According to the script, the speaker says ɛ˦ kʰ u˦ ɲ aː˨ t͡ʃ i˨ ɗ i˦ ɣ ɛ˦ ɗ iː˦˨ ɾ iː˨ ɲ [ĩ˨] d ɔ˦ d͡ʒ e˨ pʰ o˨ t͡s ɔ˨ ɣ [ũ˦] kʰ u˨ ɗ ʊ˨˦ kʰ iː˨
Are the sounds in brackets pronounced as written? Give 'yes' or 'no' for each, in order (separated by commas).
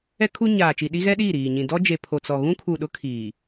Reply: yes, yes